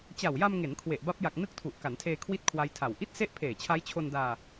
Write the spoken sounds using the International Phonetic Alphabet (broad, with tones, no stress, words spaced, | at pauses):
t͡ɕa˨˩wja˧mŋe˩˦n kʰwe˨˩ʔ ba˦˥p̚ ja˨˩k̚ nɯ˦˥k̚tʰu˨˩ʔ ka˩˦ntʰeː˧ kʰwi˥˩t̚kʰwa˦˥jtʰa˨˩w ʔi˥˩t̚se˥˩ʔ pʰeː˨˩t͡ɕʰa˦˥jt͡ɕʰo˧ndaː˧